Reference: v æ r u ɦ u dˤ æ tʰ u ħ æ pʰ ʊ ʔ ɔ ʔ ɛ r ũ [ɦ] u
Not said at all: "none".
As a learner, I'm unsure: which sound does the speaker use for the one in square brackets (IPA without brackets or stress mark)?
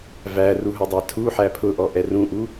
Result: ʔ